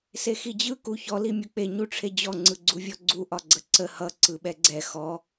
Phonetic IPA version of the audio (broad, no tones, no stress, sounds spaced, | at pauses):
s e x i d͡ʑ ɯ k u ç ɔ l i mʲ u k͡p e ɲ u ʈ͡ʂʰ e d͡ʑ ɔ ŋ͡ǀ ɯ ɡ͡ǀ u vʲ ɔ ɡ͡ǀ u ʔ ɒ ɡ͡ǀ ə ǀ ə h ʌ ǀ ɯ ɓ ɛ ɡ͡ǀ ɛ x ɔ